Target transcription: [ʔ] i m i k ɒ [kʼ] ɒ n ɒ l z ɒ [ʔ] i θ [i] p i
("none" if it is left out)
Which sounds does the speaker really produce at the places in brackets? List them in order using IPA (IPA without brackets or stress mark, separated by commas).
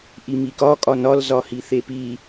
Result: ʔ, kʼ, h, e